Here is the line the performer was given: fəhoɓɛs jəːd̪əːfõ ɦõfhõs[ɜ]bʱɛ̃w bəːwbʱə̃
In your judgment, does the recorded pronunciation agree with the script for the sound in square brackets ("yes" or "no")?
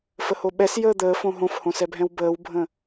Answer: no